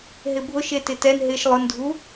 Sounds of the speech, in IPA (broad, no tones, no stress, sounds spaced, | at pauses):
ɦ ɪ bʱ ʊ ʃ e t ɪ t ɛ n ɦ ɪ ʃ lˠ ʊ n dʱ u